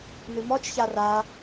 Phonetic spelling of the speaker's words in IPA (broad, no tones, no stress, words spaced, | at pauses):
nɨmɔt͡ʃça ra